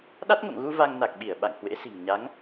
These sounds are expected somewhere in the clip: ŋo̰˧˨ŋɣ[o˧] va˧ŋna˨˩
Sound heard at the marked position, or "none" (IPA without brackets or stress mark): u˧